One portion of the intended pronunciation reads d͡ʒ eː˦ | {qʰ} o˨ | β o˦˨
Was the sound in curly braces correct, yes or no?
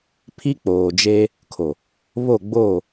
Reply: no